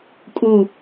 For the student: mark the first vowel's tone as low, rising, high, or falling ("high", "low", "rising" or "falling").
falling